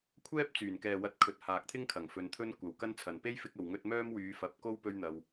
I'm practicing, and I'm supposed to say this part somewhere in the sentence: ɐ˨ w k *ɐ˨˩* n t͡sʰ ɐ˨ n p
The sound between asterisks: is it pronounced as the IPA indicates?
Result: no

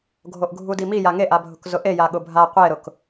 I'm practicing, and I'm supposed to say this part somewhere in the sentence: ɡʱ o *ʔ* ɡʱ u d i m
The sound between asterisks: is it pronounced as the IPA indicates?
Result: yes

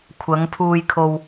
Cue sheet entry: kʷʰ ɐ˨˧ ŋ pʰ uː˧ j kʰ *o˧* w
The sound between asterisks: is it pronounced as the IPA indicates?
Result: yes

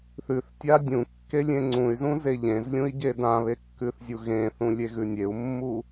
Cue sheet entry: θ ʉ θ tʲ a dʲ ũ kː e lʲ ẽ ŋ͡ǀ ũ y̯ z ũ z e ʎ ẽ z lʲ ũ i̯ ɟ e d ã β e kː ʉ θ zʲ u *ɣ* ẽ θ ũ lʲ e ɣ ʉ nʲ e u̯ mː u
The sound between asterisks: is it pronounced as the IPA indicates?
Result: yes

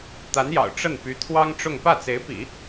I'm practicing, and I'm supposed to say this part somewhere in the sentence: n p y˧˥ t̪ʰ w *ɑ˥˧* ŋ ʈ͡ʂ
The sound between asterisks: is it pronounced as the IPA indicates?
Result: no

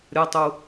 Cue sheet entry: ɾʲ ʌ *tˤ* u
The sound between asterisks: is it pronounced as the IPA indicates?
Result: yes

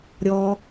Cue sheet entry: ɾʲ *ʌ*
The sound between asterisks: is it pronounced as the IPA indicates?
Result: no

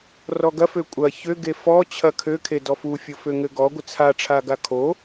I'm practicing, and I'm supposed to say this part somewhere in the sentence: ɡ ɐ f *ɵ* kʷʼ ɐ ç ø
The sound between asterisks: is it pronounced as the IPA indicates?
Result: no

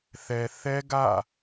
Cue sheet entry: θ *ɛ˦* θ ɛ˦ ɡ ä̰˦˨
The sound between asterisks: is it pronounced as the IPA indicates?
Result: no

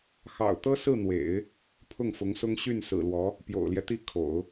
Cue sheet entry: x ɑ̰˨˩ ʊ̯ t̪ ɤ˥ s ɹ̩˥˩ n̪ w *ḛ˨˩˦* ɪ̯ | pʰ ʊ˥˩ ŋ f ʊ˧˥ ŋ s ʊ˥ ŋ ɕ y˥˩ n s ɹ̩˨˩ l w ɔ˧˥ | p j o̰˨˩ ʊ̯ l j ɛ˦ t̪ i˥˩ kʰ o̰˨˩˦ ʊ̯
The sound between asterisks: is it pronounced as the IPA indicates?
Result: yes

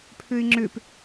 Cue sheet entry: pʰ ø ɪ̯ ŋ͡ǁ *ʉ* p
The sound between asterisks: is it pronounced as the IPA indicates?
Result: no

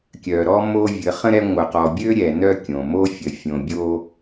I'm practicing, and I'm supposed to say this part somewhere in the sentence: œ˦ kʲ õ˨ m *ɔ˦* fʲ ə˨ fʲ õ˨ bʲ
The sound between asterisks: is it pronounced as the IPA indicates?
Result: no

